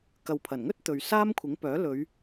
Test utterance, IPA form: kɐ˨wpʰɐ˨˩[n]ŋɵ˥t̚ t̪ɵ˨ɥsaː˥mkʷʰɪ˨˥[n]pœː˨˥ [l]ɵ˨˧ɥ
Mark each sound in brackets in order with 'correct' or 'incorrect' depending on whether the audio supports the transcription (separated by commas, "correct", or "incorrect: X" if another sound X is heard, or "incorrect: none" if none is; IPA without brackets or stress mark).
correct, incorrect: ŋ, correct